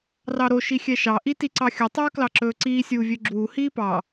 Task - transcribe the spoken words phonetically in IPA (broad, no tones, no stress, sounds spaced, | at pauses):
r ɑ ɾ o ʃ i xʲ ɛ ʃ ɑ ʔ i t i ǀ ɑ xʲ ɵ tˤ ɵː k l ɑ ǁ ɵː ǀ iː sʲ uː vʲ ø ɡ͡ǁ uː h iː p ɑ